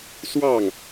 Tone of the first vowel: falling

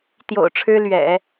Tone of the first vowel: low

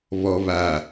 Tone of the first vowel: low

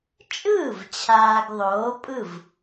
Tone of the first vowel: falling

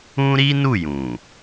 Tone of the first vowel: high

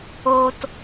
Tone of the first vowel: low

